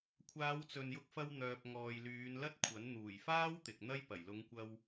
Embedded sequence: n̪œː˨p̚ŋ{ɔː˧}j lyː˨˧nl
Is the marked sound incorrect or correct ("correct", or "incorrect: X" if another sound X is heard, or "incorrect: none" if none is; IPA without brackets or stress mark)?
incorrect: ɔː˨